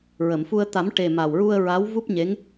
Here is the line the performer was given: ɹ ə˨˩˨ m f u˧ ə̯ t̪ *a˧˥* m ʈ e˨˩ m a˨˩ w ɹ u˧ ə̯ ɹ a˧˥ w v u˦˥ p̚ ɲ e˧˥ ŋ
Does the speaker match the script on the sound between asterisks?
no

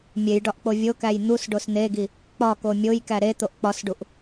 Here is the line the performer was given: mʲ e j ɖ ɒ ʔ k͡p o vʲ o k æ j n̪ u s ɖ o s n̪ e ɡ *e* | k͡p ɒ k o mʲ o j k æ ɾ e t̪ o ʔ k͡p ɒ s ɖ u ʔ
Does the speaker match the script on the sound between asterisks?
no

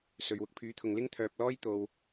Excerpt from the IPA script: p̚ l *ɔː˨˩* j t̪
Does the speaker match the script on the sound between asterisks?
no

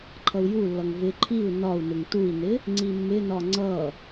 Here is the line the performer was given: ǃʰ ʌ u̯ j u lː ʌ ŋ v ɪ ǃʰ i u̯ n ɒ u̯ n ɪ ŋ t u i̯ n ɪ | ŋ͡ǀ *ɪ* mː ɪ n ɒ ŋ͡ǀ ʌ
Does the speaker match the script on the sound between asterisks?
no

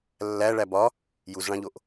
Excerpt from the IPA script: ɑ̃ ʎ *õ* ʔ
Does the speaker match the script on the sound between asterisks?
no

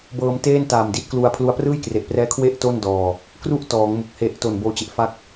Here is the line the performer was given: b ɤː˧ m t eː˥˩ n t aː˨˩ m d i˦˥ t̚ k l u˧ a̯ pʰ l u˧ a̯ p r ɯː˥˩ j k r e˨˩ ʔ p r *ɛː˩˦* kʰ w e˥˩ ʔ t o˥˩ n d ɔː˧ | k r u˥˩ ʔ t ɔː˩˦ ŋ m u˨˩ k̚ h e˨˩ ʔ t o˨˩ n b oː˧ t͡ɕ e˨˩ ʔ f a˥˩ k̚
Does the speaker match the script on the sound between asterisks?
no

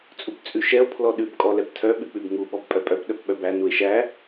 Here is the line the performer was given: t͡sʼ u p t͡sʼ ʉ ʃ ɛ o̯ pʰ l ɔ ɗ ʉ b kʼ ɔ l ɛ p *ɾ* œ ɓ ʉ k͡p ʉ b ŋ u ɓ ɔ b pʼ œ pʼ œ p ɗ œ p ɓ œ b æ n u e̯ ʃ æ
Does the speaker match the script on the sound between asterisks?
no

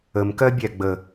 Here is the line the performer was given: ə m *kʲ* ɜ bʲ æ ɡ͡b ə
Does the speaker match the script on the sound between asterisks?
no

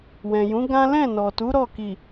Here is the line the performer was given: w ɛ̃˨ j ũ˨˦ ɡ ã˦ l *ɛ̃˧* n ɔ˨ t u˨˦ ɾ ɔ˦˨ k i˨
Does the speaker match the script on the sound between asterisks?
no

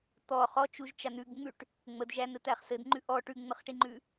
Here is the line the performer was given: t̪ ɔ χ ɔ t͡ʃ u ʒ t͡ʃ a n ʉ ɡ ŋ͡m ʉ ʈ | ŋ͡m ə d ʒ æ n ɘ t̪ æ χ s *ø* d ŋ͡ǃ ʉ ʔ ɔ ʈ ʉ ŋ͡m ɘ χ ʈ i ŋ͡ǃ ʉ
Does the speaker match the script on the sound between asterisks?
no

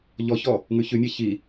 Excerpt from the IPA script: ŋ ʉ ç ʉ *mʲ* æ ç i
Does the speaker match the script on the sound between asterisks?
yes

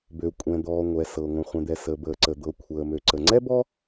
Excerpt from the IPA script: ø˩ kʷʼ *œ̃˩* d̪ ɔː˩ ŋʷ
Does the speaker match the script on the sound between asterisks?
no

